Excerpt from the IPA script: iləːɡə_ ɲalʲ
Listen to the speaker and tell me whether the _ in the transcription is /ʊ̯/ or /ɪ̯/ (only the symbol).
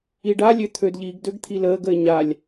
ɪ̯